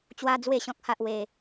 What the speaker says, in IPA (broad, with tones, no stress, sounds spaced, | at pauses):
t͡ɕ w a˦ d͡z w e˥˧ ɕ ɔ̃˦ k̚ h a˦ ʔ w e˧